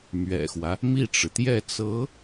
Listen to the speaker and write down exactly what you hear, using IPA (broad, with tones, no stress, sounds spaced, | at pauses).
m ɥ ɛ̰˨˩ x w ä˦ | m i˥˩ ʈ͡ʂ ɻ̩˩ t̪ j ɛ˥˩ t͡s ɤ˧˥